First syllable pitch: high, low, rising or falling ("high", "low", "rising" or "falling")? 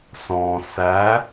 low